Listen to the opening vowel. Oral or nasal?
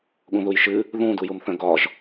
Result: nasal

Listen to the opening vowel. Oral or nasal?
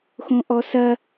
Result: nasal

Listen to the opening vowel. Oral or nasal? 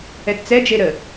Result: oral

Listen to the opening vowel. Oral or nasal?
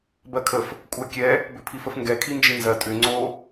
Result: oral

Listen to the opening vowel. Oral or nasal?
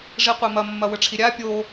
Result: oral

